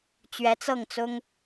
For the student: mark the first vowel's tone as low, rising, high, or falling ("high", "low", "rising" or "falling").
rising